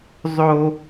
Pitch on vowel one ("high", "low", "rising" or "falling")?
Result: high